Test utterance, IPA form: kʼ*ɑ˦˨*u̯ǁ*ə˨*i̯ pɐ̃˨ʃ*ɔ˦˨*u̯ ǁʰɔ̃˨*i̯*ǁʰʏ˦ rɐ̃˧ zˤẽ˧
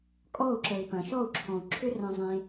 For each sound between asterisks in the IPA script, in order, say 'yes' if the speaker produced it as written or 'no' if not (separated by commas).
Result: no, yes, yes, no